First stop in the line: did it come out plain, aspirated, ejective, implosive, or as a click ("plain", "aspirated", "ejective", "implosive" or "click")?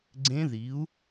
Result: click